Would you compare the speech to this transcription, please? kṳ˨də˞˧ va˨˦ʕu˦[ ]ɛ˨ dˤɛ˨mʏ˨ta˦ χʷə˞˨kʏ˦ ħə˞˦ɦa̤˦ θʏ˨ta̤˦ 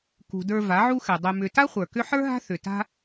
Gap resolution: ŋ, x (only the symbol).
x